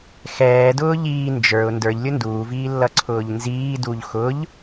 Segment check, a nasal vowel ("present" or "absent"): absent